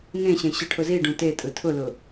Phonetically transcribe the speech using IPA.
ŋ ẽ ɕ ẽ ɕ ɯ ʈʰ ʊ z i ɖ ũ t e tʼ ɯ tʰ ʊ l ʊ

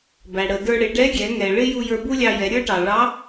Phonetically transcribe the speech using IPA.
b æ˩ ɽ ə˩ d ə˞˧ ɽ ɪ˩˧ ɖ ɛ˧˥ ɡʲ ɛ˩˧ ŋ ɛ˩ ɭ ɪ˥ j u˧ j ə˞˧ b u˥ lʲ ɑ˧ j ɛ˩˧ ɾʲ ə˞˥ ʈ ɑ˩ ɭ ɑ˧˥

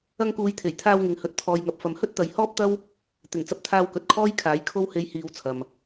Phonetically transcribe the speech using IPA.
ɐ˧ ŋ k uː˨˧ j t̪ʰ e˨˩ j t̪ʰ aː˧ w ŋ ɪ˨ ŋ h ɵ˨ t̚ t̪ʰ ɔː˨ j ŋ ɐ˨ p̚ f ɐ˨˧ m h ɵ˥ t̚ t̪ ɐ˨˧ j h ɔː˥ p̚ t̪ ɐ˥ w | t̪ ɪ˨˩ ŋ t͡s ɐ˧ p̚ t̪ʰ aː˧ w k ɵ˨˥ t̚ kʰ ɔː˥ j kʰ aː˨˥ j kʰ o˧ w h e˨˧ j h iː˨ w t͡sʰ ɐ˨ m

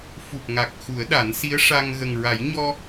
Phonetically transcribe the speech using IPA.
f u˨˩ p̚ ŋ a˨˩ k̚ x u˨˩˦ ə̯ ɗ a˨˩˦ n s i˧˥ ə̯ ʂ a˧ ŋ ɣ ə˨˩ ŋ ɹ a˨˩˦ j ɲ ɔ˧

